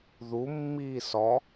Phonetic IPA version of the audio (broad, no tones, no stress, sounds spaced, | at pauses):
ð u mː iː s ɔ